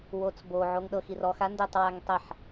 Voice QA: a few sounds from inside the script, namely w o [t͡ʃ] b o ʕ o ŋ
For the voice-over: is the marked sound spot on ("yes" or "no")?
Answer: no